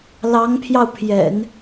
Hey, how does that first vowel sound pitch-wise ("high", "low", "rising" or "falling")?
rising